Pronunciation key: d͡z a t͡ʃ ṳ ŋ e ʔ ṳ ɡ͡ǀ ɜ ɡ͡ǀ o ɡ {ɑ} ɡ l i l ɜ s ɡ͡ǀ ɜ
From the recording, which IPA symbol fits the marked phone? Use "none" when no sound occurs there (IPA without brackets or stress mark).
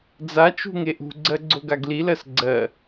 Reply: a